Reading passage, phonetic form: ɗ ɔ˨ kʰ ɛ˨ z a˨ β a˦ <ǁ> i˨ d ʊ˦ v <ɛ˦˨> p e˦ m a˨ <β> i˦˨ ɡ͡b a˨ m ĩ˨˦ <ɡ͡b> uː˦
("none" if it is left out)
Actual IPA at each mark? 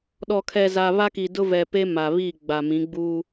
k, ɛ˨, β, ɡ͡b

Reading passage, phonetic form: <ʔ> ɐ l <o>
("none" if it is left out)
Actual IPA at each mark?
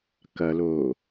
k, o

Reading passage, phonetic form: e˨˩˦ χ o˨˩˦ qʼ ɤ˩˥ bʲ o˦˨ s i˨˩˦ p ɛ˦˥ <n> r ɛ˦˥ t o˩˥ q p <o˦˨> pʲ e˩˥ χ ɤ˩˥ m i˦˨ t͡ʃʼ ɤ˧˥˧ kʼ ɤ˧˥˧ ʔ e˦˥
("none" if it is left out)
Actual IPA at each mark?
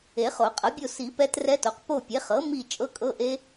t, o˦˨

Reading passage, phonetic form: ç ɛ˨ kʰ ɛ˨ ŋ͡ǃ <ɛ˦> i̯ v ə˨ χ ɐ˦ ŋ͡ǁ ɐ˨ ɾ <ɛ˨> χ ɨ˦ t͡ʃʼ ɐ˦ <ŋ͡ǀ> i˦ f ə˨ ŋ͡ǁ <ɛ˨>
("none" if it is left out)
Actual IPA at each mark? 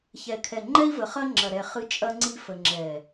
ɛ˦, ɛ˨, ŋ͡ǀ, ɛ˨

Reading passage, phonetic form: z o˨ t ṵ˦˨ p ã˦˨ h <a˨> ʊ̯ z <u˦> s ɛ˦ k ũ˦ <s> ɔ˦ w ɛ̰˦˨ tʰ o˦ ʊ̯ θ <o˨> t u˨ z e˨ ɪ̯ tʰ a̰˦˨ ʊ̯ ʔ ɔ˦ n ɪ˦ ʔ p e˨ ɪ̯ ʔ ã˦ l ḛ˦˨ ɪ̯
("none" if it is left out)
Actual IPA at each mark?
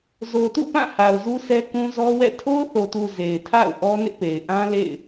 a˨, u˦, z, o˨

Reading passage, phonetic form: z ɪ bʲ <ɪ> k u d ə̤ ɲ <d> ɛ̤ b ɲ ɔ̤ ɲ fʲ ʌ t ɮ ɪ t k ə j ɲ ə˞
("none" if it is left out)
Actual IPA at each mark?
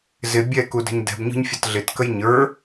ɛ, d

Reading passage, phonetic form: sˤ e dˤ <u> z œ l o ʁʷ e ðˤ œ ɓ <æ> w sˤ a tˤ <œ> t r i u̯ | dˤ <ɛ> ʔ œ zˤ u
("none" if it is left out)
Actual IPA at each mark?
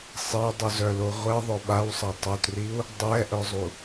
u, a, œ, ɛ

